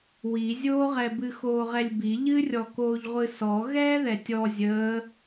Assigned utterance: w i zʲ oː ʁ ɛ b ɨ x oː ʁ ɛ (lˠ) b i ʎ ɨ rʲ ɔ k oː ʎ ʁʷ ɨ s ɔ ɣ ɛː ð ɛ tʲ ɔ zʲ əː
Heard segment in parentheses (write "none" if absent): lʲ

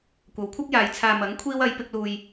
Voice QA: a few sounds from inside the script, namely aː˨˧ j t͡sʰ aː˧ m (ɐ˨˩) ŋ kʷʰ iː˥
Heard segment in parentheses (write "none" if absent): ɐ˨˥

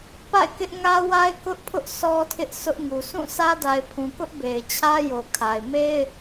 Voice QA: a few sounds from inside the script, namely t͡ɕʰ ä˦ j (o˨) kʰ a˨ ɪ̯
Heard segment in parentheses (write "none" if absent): o˨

